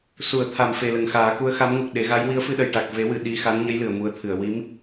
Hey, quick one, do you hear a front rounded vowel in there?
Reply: no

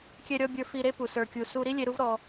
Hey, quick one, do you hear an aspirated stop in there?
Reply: no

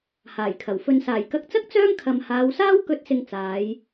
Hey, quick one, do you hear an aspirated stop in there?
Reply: yes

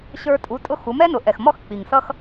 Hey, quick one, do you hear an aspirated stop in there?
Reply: no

